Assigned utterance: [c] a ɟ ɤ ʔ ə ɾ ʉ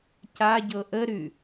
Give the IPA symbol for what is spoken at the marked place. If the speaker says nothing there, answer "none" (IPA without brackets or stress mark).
c